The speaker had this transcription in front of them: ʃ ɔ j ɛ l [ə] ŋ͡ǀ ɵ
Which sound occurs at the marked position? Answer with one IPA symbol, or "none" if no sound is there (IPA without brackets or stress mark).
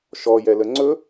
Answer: ə